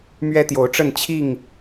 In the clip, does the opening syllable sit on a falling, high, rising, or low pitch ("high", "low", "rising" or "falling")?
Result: high